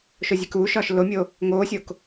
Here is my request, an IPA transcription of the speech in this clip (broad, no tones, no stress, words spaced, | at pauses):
ʃozʲekuːʃɒːʃ lomʲo | ŋoːsʲok